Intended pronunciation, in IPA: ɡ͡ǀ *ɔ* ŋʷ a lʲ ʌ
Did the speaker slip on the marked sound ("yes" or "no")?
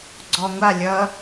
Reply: no